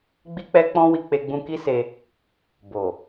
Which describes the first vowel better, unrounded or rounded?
unrounded